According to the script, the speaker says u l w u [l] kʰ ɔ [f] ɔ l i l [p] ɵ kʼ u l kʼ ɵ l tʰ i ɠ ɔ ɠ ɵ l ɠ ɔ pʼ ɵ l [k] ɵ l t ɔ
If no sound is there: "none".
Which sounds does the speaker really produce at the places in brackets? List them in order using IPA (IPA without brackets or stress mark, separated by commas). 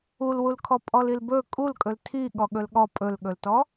l, pʼ, b, ɠ